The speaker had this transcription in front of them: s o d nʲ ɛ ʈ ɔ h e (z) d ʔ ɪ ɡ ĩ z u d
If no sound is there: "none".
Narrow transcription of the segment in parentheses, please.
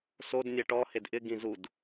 none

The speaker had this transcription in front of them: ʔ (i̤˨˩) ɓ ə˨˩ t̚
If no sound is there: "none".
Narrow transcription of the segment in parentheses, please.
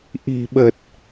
i̤˨˩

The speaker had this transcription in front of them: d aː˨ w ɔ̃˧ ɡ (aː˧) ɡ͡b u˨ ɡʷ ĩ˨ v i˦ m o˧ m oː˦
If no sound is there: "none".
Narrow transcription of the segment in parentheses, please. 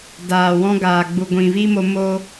aː˨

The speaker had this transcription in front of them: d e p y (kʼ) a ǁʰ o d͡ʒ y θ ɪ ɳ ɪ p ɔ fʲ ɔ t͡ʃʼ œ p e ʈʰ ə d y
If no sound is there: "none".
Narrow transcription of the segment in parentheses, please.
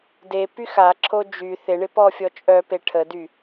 x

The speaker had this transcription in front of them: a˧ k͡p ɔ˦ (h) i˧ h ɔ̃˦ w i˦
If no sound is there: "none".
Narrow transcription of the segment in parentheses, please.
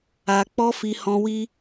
f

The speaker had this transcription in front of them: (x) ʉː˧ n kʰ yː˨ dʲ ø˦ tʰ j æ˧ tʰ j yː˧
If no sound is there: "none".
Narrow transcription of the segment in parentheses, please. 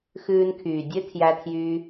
x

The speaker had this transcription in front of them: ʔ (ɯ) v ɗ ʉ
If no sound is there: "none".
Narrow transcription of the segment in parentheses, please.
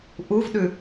u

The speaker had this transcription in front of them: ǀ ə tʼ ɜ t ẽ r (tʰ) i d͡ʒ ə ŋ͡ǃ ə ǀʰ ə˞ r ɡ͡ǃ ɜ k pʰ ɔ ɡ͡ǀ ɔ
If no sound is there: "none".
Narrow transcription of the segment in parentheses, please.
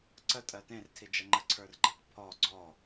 tʰ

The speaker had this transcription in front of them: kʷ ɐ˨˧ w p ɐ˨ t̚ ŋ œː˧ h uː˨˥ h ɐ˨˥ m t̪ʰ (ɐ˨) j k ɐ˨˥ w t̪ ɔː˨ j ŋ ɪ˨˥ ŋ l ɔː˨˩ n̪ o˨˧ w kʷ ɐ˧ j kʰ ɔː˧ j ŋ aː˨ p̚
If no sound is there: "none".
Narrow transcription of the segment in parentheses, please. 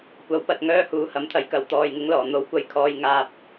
ɐ˨˧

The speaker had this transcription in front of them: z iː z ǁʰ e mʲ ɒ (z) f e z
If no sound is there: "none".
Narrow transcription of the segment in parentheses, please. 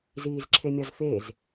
z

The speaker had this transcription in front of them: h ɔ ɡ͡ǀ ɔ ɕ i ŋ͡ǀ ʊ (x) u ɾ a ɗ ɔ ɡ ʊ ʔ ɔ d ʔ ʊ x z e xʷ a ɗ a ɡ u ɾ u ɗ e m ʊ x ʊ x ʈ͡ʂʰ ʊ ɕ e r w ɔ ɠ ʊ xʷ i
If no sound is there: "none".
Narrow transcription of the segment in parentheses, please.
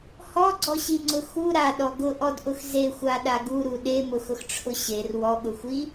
x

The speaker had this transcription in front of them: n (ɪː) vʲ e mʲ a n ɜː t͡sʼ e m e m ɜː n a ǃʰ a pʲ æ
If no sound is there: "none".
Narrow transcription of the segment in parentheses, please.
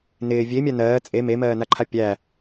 ɪː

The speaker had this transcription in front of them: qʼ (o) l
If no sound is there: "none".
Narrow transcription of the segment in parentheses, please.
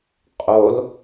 o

